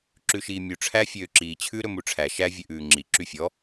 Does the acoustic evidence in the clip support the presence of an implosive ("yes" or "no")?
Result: no